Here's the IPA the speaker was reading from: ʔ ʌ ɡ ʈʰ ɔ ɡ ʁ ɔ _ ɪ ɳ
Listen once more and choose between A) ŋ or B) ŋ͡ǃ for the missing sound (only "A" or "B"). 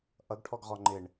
B